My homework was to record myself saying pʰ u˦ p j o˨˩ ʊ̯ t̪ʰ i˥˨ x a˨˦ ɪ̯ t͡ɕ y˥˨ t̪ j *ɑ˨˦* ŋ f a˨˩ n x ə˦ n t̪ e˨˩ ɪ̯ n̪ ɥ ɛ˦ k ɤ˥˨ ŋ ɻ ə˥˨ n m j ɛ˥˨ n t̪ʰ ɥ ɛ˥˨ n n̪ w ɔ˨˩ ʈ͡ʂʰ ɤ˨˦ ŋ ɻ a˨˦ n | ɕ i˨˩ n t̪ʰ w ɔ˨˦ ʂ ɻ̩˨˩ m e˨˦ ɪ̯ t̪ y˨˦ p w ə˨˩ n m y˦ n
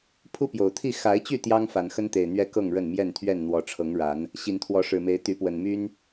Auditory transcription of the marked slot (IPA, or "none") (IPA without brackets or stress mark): ɑ˦